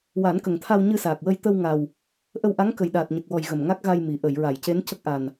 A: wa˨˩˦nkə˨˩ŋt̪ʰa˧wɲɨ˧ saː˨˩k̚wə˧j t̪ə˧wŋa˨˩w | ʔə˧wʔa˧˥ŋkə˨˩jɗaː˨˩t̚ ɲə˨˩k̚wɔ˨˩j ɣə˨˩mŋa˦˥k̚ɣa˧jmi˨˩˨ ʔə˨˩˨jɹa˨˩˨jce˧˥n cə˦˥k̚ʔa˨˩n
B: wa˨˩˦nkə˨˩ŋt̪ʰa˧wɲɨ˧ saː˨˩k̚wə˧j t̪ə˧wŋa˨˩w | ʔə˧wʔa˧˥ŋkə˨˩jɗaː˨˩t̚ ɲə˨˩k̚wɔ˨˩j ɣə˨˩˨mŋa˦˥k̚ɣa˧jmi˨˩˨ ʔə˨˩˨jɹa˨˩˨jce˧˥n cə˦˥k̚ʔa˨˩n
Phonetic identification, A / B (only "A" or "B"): A